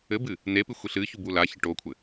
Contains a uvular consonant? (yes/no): no